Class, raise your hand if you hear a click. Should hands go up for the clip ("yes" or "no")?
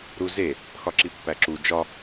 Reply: yes